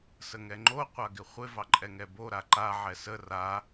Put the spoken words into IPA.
s ə ŋ ɛ ŋ͡ǃ o qʷ a ɡ ɪ χʷ ɪ v ɑ ǃʼ ɛ ŋ ɛ b o ɾ a ǃ a ʕ ɛ s ə r a

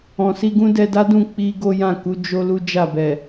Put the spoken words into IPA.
ɔ̃˨ s i˧ ɡ ũ˦ d ɛ˧ d a˦ d ũ˦˨ k͡p i˧ ɡ o˦ j ã˦˨ k u˨˦ d͡ʒ o˦ l u˦ d͡ʒ a˦˨ b ɛ˨

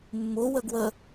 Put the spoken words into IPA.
mː ʊ w ə ɡ w ə

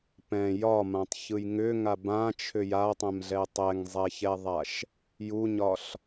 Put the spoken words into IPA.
p ɛ̃ j ɒ m ã tˤ ç ɯ j ŋ ʏ ŋ a b ã t͡ʃʰ ʏ j a tˤ ɛ̃ m ɮ ɛ tˤ ɛ ŋ zˤ ɛ ç ɛ ðˤ a ʃ | j u ɲ ɒ ɬ

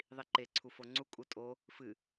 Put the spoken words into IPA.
ðˤ i ǃ e ǀʰ u f o ŋ͡ǀ u kʼ u tʼ o | f ɨ

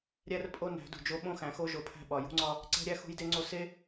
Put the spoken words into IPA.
ɾʲ æ˦ r pʼ o˦ n æ̤˨˦ d ṳ˨ d͡ʒ o˦ ɓ õ˦ x æ̃˨ x o˦ ʒ o˨ pʰ æ̤˦ ɓ ɒ˨ j ṳ˦ ŋ͡ǀ ɒ˦ | ǀ æ̤˦ ɾʲ æ˦ x ṳ˦ j d e˦ ŋ͡ǀ o˦ s e˦

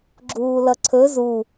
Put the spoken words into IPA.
ɡ͡ǁ uː l ʌ ǀʰ ɵ z u

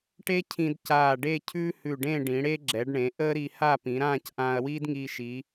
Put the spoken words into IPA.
ʈ e˥ cʰ ĩ˧ d c aː˧˩ ɖ e˥˧ cʰ ʉː˥ h ʉ˧˩ ɖ ẽ˥˧ ɖ ĩ˩˧ ɽ e˥ ɡ͡ǁ ɛ˩˧ ɖ ɳ ẽ˩˧ ʔ əː˥ ɾ i˧ h a˥˧ p ĩ˩˧ ɾ ãː˥˧ c ʔ ãː˧ ɐ̯ w iː˥ d ŋ iː˧ ʃ i˩˧

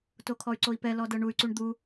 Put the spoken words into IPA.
t o kʰ ɔ y̯ ǀ o i̯ p ɛ l ɔ d ɤ ɳ u y̯ ǀ u ɳ d̪ u

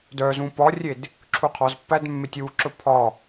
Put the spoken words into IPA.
d œ z ũ p ɒ rʲ e d | ǁʰ u qʰ ɒ z pː æ d mː e tʲ w u ǁ ɵ pʰ ɒ

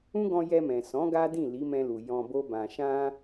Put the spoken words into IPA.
ũ˦ ɡ ɔ̃˧ j ɛ˧ m ɛ̃˨ s ɔ̃˨˦ ɡ a˦ d ĩ˦˨ l i˨˦ m ɛ̃˧ l u˨ j ɔ̃˧ b o˦ b ã˧ ʃ ã˦

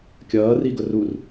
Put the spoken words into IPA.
kʲ ʌː r i ɡ ʊ r u r

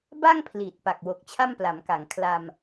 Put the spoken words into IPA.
b a˥˩ ŋ pʰ l iː˨˩ t̚ p a˨˩ k̚ w o˨˩ k̚ t͡ɕʰ a˥˩ m p l a˩˦ m k a˩˦ ŋ kʰ l a˧ m

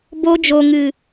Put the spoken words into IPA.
b o˧ d͡ʒ o˨ ŋ ɨ˨

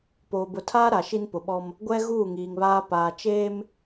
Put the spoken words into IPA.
p oː˨ b ʊ˨ tʰ aː˦ ɾ a˨ ʃ i˦ n p ʊ˨ ɓ ɔ˦ m | ɡʷ ɛ˦ ɣ uː˦˨ ŋ iː˨ ŋ β aː˦ p aː˨ t͡ʃ eː˦ m

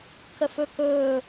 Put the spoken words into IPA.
k ə f ɵ k ɵː

